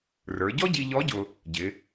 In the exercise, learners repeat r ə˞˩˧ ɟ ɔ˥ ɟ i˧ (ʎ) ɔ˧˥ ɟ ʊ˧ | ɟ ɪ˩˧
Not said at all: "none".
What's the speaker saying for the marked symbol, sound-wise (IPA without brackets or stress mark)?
ʎ